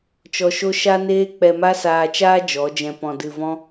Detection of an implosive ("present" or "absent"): absent